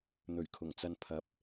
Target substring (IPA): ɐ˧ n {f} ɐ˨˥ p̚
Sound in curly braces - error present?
yes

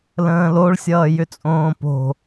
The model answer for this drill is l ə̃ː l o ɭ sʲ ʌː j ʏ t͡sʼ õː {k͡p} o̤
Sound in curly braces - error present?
yes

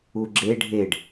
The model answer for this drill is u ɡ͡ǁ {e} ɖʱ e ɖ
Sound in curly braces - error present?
no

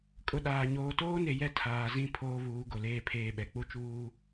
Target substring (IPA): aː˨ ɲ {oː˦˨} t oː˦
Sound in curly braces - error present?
yes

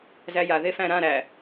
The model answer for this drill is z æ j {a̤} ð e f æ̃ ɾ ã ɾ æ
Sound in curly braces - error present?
yes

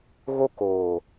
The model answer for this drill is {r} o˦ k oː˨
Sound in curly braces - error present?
yes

